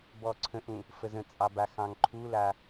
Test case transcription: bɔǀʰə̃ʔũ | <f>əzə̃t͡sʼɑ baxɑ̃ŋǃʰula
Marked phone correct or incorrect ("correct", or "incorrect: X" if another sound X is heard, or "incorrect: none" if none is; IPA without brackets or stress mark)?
correct